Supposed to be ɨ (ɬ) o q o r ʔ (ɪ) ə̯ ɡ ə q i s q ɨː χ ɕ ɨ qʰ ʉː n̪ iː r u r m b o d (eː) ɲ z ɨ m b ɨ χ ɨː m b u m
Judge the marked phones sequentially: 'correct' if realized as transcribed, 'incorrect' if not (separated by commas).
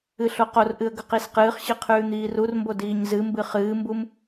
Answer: correct, incorrect, incorrect